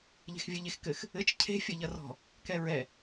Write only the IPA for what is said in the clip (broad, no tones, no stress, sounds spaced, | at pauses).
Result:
ʎ e̤ x vʲ ɘ ʎ e x k ɘ x | ɘ t͡ʃ cʰ e̤ fʲ ɐ ʎ ɐ r ɔ̤ | k ɛ ɹ ɛ